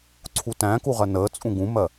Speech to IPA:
ǀʰ u t æ̃ k u ʁ ɜ n əː t͡sʼ ũ ɡ ũ m ɜ

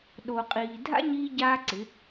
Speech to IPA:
ɗ o˨ qʼ iː˨ dʱ a̰˦ ɲ iː˧ ɟ aː˦ ǀ ɪ˨˦

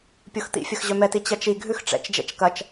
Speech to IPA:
pʲ o x t̪ ḭ fʲ ɐ x ʑ œ m ɛ t i t͡ɕ ɐ t͡ʃ i ɡʱ ʉ x ʈ͡ʂ ɛ̰ t͡ʃ d͡ʒ ɛ̰ t͡ʃ k ɐ t͡ʃ

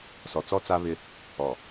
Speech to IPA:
s ɔ˨ t͡s ɔ˦ t͡s a˦ β ɪ˦ | ɔ˨

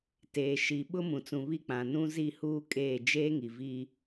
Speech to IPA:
t eː˨ ʃ i˨ ɓ ʊ˦ m ũ˨ t͡s ũ˨ β i˦˨ k͡p ã˨ n ũ˦ z i˦˨ h uː˦ kʼ eː˦˨ d͡ʒ eː˦ ŋ i˨ v i˦

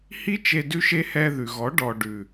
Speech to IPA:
h i˦ t͡ʃ e˧ d ʉ˧ ʃ e˧ h ɛ˧ ð ʉ˨ ɣ ɔ˨˦ ɖ ɔ˨ ɖ ʉ˨

